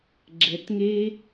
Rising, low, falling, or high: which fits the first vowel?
low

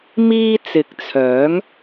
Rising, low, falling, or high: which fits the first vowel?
high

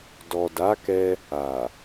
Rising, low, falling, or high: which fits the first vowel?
low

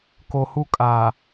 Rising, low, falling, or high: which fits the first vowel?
low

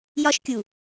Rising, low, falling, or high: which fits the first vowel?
high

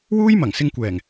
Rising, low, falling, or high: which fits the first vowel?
high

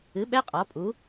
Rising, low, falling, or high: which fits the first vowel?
rising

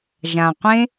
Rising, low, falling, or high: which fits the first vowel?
low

